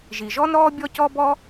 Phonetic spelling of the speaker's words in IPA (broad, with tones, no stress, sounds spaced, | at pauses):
ʒ i˩ ʒ ɔ˥ n ɾ ɔː˥ bʲ ɔ˥ c ɔ˥ b ɔ˥